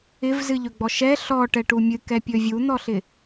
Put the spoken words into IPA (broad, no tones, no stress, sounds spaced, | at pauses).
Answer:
ɪ v z ɨ ʎ ɵ ɡ͡b ɔ ʃ ɛ ɬ ɔ ʈ ɛ ʈ u mʲ ɨ k ɛ pʲ ɵ vʲ u n̪ ɔ ɬ ɪ